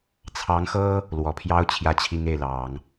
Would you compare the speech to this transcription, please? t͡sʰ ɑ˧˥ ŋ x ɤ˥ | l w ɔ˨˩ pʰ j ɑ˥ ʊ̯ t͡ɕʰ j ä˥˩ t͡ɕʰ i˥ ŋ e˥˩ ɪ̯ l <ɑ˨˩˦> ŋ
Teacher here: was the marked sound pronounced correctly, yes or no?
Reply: yes